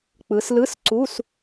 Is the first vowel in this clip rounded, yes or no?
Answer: no